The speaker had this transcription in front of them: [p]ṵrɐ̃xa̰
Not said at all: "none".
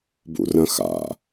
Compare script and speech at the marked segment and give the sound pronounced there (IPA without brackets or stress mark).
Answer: b